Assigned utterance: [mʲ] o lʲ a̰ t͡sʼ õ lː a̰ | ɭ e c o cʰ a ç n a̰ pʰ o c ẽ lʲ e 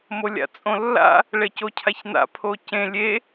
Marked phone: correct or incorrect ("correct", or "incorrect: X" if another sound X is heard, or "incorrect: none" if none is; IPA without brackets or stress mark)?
incorrect: m